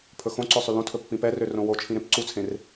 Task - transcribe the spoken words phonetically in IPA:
pʰ ɵ x õ ǀ ɵ sˤ y l õ tʰ ɵ pː ĩ p ɛ r ø r õ w o t͡ʃʰ ĩ ɾ ẽ p ǀ u t͡sʰ ẽ r

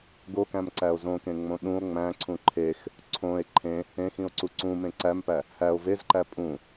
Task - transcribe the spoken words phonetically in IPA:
ɡ o k æ̃ m ǀ æ o̯ z õ k ẽ ŋ͡m õ ɗ ũ o̯ ŋ͡m æ̃ ǀʰ ũ ǃʰ e x | ǀʰ õ e̯ ǃʰ ẽ | ẽ x ĩ o̯ ǀ u ǀ ũ m ẽ ǀ æ m p æ | h æ o̯ v e z ǃ æ pʼ ũ

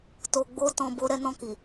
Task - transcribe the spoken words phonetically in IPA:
t o˨ ɡ͡b o˧ t ɔ̃˧ b o˦ ɾ ɛ˧ n ɔ̃˧ k i˨

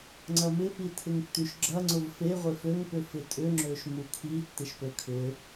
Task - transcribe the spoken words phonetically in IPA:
ŋ͡ǀ ɐ m ɪ p i tʰ ɪ ŋ tː y ʃ ɡ͡ǁ ɐ ŋ͡ǀ ʊ v f e ʁʷ e f ø ŋ p ʏ f ɪ tʼ ʏ ŋ͡ǁ ø ʃ m u kʰ i tː ɪ ʃ p ø kʰ ʏ

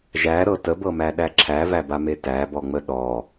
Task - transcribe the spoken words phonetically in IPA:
ʒ æ ɾ ɤ t ə b ɤ m æ ɗ æ ǁʰ æ v æ b a m e t æ b ɔ ŋ͡m ə ɗ ɔ

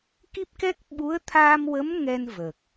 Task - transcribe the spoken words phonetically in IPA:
k i˦˥ p̚ k ɛ˦˥ k̚ ɓ u˧˥ ə̯ t̪ʰ aː˧ m w ə˧˥ m ŋ ɛ˧ n v ə˨˩ k̚

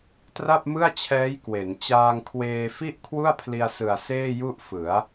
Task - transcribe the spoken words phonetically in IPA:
t r a˥˩ p̚ m ɯ˥˩ a̯ t͡ɕʰ ɛː˦˥ j k w e˩˦ n t͡ɕ aː˧ ŋ kʰ w eː˧ f i˥˩ ʔ kʰ w u˥˩ a̯ pʰ l i˧ a̯ s ɯ˨˩ a̯ s eː˥˩ j u˥˩ ʔ f ɯ˩˦ a̯

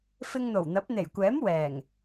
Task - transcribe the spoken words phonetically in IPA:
f ɪ˧ ŋ n̪ o˨˩ w n̪ ɐ˨˥ p̚ n̪ e˨˩ j kʷ ɛː˨˥ m w ɛː˨˩ ŋ

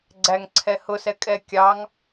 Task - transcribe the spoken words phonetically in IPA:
ɡ͡ǀ æ ŋ ǀʰ ɛ h ʊ s ɛ kʼ ɛ kʲ ɑ ŋ

